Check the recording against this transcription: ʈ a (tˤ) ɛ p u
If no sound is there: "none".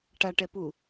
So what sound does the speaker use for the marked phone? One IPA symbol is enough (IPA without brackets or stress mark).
ʈ